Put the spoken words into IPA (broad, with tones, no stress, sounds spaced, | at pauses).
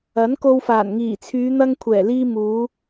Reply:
ɐ˨˥ n k o˧ w f aː˨˩ n ŋ iː˨˩ t͡sʰ yː˨˧ n̪ ɐ˧ ŋ kʷʰ ɛː˨˩ l iː˧ m uː˨˧